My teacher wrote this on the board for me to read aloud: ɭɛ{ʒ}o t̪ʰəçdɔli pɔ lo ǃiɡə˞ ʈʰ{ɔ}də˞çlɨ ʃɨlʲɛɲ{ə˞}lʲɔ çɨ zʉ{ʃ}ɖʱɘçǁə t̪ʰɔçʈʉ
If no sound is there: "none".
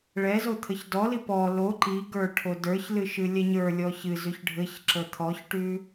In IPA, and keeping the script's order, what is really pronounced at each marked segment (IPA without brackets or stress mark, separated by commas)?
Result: z, o, ə˞, ç